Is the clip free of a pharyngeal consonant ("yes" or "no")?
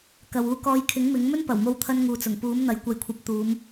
yes